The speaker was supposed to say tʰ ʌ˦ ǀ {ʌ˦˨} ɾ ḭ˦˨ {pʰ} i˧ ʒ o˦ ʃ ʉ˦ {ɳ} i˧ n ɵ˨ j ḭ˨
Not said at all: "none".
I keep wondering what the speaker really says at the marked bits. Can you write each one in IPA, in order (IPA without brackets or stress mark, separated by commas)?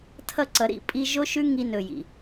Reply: ʌ˨˦, pʼ, ŋ